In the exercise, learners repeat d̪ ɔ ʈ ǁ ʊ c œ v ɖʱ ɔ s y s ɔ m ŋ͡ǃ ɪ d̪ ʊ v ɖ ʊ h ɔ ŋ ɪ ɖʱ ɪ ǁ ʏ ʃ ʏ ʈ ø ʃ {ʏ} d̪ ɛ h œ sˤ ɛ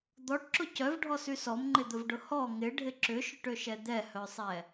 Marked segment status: incorrect: ɛ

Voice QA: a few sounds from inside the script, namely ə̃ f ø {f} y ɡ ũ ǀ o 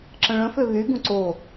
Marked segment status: incorrect: β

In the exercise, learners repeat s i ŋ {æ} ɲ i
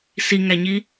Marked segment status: correct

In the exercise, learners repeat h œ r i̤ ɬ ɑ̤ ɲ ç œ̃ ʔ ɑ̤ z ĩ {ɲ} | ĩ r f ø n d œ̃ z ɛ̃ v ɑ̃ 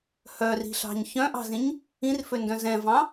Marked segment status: correct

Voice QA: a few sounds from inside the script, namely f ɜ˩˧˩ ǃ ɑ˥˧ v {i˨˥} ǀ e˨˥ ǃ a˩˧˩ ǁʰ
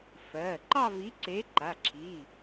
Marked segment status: correct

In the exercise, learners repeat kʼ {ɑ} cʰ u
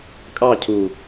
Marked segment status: correct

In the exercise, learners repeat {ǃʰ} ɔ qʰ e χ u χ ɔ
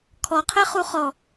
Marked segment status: incorrect: kʰ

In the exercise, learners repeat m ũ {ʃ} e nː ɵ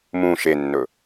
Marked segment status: correct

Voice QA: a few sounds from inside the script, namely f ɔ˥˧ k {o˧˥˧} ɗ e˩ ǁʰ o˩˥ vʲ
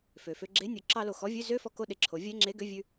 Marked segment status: incorrect: o˥˧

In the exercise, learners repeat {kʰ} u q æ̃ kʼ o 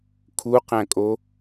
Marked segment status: correct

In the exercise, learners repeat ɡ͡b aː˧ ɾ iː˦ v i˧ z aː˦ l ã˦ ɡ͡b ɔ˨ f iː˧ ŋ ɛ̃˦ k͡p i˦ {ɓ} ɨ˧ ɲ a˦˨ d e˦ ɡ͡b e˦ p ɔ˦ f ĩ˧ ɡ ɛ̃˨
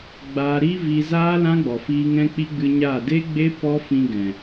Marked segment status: incorrect: ɡ͡b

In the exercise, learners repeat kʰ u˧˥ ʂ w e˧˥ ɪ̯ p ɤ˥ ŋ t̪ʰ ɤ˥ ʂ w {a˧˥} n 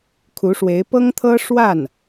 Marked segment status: incorrect: a˥˩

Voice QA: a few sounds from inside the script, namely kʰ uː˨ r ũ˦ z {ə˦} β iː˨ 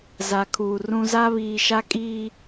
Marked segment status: incorrect: a˦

